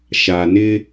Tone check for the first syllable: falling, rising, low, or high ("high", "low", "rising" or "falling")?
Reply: low